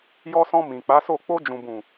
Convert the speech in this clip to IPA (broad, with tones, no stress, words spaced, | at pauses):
jɔ˧sɔ̃˧ mĩ˨k͡pa˨˦so˦˨ k͡po˧d͡ʒũ˨bũ˨